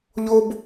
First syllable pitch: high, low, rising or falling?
high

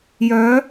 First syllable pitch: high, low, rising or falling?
rising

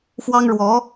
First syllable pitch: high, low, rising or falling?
high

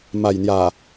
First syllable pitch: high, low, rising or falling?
low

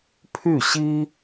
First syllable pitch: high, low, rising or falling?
falling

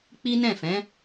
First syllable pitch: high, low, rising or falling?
high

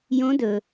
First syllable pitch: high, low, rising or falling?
rising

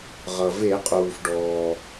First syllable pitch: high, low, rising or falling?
low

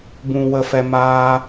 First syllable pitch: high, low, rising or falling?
low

